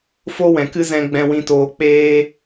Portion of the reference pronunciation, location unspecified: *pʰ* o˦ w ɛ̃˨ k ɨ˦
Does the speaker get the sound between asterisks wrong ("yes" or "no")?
yes